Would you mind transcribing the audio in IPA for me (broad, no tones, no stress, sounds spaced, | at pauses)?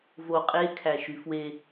v o qʼ e kʰ æ ʃ y f w e